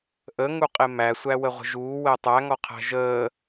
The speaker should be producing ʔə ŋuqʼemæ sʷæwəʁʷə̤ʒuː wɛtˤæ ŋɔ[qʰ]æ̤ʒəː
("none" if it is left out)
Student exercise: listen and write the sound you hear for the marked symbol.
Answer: qʰ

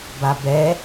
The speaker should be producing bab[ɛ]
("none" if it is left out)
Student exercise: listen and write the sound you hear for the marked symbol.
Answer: ɛ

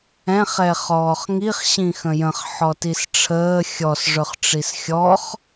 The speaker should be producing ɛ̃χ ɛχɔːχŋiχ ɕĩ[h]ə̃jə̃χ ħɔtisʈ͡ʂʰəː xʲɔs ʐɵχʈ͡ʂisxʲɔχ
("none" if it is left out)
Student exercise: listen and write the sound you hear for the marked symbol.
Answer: x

